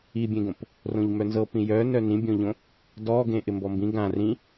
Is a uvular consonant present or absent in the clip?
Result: absent